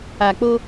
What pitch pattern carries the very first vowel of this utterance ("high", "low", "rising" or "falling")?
low